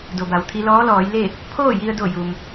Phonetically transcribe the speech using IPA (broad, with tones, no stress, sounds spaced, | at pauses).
d o˩ b a˩ w t̪ʰ i˧ l ɔː˧˥ l ɔː˩˧ j l e˥˨ | pʰ oː˥˨ j i˧ ə̯ d o˧˩ j u˩ m